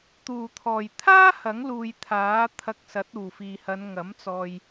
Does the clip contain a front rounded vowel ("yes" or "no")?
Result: no